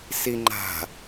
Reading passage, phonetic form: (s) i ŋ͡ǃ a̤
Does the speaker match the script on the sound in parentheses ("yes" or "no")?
yes